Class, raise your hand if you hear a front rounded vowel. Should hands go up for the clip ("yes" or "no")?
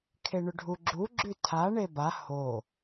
no